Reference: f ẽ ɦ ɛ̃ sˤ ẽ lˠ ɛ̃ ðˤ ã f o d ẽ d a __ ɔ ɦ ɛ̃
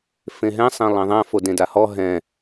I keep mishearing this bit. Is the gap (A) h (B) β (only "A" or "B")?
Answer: A